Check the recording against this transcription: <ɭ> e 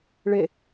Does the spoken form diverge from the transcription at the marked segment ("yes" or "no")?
no